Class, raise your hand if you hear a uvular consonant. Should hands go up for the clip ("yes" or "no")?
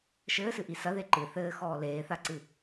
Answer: no